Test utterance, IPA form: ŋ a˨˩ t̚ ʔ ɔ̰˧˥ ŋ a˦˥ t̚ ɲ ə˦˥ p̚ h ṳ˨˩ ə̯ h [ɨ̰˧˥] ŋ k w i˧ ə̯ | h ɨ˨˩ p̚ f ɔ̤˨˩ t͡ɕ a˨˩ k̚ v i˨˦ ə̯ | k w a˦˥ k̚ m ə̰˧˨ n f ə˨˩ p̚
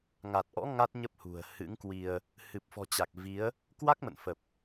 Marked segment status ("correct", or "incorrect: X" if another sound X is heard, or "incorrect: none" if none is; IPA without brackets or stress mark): correct